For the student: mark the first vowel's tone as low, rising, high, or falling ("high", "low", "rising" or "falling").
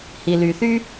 low